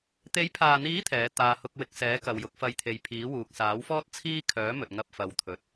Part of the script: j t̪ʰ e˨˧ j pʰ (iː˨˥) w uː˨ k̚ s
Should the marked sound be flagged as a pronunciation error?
no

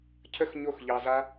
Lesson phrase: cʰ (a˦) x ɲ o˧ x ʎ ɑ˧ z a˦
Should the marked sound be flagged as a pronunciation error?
yes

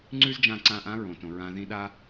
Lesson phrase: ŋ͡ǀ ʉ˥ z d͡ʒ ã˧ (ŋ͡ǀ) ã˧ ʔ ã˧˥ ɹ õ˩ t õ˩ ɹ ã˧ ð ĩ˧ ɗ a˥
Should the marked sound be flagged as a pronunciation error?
yes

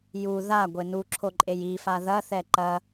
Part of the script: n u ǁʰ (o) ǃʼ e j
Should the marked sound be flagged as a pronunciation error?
no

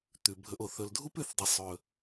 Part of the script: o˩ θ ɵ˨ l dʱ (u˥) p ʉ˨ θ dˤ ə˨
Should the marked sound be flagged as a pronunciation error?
no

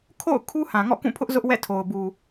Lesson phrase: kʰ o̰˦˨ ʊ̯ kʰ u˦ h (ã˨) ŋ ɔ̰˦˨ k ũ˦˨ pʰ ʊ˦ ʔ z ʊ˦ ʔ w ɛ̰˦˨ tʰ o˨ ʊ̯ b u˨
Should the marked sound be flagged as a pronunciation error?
no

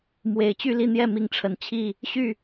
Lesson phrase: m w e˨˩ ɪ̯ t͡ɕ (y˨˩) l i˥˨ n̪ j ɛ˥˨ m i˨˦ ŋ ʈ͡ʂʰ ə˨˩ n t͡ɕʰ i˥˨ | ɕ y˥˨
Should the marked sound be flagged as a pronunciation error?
yes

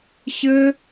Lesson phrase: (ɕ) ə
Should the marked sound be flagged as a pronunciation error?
no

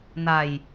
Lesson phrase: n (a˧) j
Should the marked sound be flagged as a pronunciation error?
no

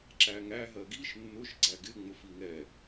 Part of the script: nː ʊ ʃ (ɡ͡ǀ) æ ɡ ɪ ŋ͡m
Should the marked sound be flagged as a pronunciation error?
no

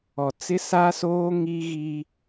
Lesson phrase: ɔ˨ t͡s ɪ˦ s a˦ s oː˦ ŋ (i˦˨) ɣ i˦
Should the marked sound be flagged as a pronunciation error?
yes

